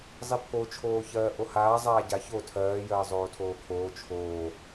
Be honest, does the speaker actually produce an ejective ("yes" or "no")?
no